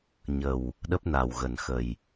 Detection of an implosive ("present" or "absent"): present